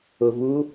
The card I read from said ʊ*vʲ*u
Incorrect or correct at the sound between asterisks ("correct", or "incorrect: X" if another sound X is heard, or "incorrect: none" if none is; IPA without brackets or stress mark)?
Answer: incorrect: v